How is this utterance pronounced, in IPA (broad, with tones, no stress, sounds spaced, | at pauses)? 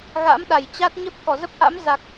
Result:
ɣ a̰˧˥ m ɗ a˧˩ j t͡ɕ a˦˥ t̚ ɲ ə˦˥ p̚ k ɔ˧˩ z ə˦˥ p̚ ʔ a̰˧˥ m z a˨˩ k̚